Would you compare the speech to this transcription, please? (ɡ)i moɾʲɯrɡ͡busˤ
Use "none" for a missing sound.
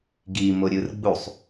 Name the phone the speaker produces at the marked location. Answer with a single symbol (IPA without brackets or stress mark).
ɡ